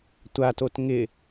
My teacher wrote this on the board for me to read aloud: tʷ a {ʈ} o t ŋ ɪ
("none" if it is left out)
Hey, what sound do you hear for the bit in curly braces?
t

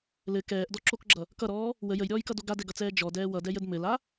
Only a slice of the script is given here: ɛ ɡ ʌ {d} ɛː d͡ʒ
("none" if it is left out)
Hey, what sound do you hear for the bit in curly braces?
t͡s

